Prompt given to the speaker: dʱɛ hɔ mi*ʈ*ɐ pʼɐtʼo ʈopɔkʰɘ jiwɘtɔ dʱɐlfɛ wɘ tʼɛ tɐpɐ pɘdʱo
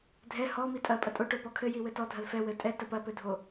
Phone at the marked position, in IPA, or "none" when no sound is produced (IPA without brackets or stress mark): tʼ